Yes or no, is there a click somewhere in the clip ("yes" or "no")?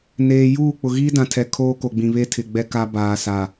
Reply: no